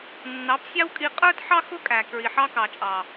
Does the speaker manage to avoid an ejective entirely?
no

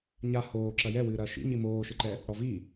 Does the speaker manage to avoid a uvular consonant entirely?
yes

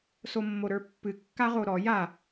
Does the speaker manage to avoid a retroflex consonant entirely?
yes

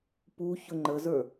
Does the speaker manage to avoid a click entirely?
no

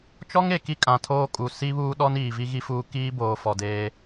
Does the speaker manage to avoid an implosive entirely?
no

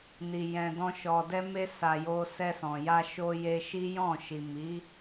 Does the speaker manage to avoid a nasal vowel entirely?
no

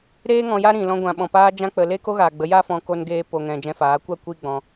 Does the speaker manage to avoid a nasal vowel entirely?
no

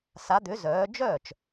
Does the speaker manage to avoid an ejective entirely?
yes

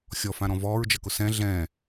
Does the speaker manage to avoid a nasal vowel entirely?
no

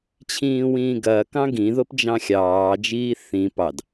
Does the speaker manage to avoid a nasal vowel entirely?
no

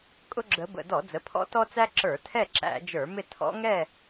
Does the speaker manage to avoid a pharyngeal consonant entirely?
yes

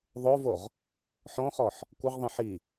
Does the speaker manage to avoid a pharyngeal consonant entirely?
no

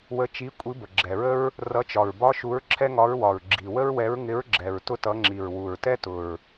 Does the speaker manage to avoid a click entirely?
no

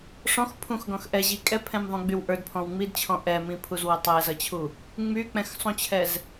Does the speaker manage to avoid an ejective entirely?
no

